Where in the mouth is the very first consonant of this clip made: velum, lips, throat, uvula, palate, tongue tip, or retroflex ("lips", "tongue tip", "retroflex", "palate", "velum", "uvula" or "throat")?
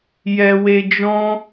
palate